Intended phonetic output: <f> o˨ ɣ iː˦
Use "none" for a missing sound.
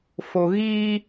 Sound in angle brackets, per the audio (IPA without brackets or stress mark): f